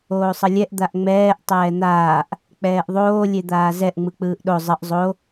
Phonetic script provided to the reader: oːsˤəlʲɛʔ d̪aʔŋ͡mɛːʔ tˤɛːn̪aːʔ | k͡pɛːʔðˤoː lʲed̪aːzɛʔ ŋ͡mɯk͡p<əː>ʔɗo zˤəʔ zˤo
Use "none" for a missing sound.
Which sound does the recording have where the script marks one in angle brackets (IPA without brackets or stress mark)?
ɯː